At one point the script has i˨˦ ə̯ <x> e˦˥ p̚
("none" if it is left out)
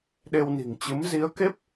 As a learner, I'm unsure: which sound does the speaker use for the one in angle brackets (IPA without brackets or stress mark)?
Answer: k